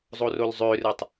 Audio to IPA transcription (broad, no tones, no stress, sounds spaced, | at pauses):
zˤ o r o l zˤ ø r ɯ tˤ